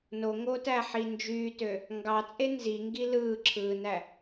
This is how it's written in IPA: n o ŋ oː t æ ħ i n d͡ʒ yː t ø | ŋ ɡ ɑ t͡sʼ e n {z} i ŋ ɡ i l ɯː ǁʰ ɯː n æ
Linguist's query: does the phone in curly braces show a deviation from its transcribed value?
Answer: no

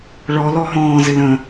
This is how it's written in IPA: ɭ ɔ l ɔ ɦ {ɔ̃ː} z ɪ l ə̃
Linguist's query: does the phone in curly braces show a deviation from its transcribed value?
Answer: no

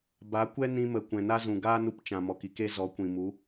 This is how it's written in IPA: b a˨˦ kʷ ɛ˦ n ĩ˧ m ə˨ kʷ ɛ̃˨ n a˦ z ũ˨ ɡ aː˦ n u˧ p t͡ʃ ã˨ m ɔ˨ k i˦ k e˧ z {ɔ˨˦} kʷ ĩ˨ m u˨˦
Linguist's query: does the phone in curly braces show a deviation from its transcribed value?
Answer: no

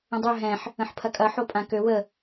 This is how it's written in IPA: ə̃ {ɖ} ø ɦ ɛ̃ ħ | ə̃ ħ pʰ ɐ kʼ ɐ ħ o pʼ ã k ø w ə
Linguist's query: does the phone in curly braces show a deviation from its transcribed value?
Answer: yes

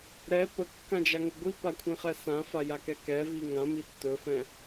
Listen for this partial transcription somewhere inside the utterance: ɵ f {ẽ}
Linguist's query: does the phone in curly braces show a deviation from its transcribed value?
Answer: yes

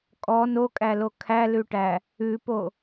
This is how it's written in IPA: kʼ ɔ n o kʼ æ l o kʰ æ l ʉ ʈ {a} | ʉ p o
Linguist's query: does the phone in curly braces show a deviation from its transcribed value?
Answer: yes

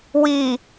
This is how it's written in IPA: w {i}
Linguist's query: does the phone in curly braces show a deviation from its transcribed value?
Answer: no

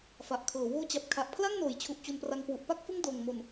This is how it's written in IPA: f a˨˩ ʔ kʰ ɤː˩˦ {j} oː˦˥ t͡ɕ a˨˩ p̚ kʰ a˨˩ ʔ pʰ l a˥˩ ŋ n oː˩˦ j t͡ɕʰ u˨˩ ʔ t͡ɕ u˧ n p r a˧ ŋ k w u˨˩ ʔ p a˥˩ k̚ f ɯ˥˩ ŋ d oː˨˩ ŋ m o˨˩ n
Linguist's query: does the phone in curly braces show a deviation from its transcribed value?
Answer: yes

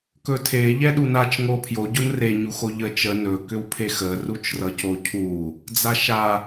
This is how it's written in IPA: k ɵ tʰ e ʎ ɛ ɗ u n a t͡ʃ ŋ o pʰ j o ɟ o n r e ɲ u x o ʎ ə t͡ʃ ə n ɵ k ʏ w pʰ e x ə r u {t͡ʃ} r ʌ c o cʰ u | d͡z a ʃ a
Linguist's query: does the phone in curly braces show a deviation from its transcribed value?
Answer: no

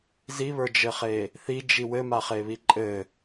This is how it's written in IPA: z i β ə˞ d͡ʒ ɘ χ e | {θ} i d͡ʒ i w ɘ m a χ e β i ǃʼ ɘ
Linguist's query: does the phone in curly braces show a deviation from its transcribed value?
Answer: no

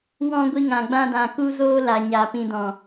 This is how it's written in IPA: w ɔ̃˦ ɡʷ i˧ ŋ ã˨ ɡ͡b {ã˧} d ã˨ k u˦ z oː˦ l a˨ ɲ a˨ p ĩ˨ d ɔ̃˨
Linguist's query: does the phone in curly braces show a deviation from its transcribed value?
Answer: no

